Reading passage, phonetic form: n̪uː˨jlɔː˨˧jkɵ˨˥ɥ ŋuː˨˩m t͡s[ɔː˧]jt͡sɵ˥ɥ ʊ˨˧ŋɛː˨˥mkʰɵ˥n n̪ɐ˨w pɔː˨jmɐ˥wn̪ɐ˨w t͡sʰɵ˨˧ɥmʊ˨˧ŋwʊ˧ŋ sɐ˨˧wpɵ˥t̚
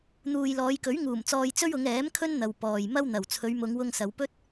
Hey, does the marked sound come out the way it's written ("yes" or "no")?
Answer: yes